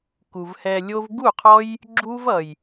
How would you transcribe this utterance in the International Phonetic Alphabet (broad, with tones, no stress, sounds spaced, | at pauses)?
k u˨ v h ɛ˧ lʲ o˦ v ɡ u˦˨ qʰ ɔ˦ j | ɡ͡ǁ u˦ v ʌ˨ j